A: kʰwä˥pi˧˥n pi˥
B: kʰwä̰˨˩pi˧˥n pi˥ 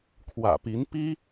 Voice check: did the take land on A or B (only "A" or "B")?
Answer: B